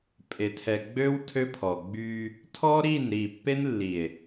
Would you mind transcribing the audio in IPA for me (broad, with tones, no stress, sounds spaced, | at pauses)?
pʼ e˨ tʰ ɛ˨ ɡ͡b ø˦ w tʰ ø˦ pʰ ɔ˨ ɡ͡b y˦ | tʰ ɔ˦ ɾ i˦˨ n ɾ i˦˨ pː e˦ n lː i˨ e̯